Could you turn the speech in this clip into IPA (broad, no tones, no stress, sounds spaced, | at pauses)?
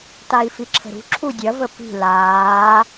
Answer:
t a i̯ f i ǁʰ ə̤ ɾ ṳ ǁʰ u dʲ ɐ v ə p i̤ l aː